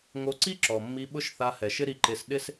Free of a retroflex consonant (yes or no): yes